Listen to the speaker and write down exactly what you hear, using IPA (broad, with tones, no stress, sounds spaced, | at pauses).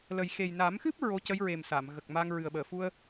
l ə˨˩ j x e˨˩ j n a˨˩˦ m x ɨ˦˥ p̚ ɹ o˧˥ c ə˧˥ j ɹ e˨˩ m s a˨˩˨ m ɣ ə˨˩ k̚ m a˧ ŋ ɹ ɨ˨˩ ə̯ ɓ əː˨˩˨ f u˧ ə̯